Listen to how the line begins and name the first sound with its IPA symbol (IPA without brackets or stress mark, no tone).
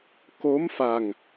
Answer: k